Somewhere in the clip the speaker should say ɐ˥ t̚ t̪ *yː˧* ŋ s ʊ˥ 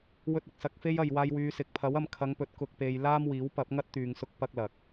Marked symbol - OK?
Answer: yes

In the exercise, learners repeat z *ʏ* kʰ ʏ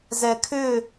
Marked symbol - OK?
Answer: no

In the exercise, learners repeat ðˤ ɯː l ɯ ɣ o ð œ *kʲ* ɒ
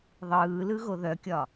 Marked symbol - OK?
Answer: yes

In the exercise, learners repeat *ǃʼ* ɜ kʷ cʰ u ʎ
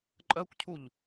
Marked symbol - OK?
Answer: yes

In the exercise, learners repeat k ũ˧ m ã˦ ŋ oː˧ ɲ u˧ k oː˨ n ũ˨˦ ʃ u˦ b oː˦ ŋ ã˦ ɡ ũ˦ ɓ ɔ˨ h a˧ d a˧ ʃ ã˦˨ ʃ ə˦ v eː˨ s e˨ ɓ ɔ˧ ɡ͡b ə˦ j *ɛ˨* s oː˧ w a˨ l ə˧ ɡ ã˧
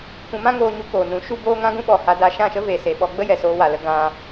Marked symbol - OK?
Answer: yes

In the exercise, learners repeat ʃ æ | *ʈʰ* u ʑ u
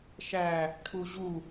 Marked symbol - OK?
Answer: yes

